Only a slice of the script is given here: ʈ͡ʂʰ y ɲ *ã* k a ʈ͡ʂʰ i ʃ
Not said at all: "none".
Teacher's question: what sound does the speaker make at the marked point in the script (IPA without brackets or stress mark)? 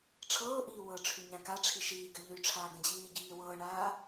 ã